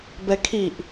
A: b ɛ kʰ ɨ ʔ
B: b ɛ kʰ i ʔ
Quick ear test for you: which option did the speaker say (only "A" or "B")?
B